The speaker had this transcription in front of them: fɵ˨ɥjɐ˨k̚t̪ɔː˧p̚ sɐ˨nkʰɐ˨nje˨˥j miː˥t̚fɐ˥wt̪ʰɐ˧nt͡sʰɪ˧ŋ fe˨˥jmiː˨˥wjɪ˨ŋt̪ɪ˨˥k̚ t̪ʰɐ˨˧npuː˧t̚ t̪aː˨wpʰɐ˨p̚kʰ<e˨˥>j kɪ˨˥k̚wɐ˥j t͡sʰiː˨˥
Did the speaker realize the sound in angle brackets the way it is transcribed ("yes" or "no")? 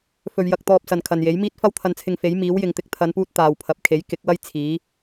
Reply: yes